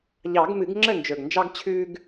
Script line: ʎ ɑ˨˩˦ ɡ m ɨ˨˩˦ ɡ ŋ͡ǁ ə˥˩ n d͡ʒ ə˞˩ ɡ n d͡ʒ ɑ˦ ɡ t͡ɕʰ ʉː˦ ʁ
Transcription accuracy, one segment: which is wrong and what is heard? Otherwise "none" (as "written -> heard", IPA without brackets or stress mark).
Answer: ʁ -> ɡ